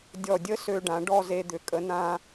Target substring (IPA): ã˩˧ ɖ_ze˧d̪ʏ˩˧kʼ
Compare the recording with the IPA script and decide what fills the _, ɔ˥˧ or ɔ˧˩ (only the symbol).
ɔ˥˧